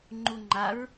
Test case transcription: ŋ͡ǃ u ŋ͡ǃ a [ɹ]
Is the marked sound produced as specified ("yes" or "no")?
yes